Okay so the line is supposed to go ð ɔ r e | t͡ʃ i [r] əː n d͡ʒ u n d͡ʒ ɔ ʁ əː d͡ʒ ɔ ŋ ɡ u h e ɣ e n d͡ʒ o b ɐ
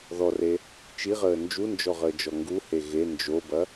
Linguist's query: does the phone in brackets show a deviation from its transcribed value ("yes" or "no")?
yes